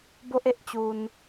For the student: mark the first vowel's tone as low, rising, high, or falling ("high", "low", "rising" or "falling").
high